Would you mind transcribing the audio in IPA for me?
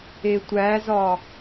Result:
etʷæzɒ

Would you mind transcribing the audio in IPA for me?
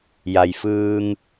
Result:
ja˩jfɯː˧ŋ

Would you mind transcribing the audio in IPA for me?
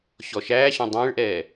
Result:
ɕɔʃæːɕɔ̃ dˤẽːɭʔɛː

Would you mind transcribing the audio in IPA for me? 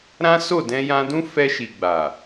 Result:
ɾã˦so˦˨ dɛ̃˧jã˧dũ˦ fɛ˧ʃi˨ɡ͡ba˨

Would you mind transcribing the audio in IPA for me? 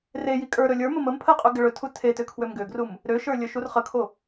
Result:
reji kʼə˞ɾɵ lʲə˞mə məm pʰəqʼø ɡəɭɵtʰu tʰetø kʰwømɡøɡrum | ɾøʃə˞ lʲɵʃurχəkʰo

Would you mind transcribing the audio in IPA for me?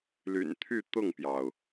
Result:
ly̰˨˩nt̪ʰy˥˧t̪ʊ˥˩ŋpjɑ˩ʊ̯

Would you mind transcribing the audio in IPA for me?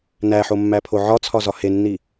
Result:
næħomːæpʰo ʕɒt͡sʰɒzɒ henːi

